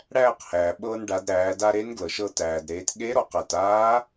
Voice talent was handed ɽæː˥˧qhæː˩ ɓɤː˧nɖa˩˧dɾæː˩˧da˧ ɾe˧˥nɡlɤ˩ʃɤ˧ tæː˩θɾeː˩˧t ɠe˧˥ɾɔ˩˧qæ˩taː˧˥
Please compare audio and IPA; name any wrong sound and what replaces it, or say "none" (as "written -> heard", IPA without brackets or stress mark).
θ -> d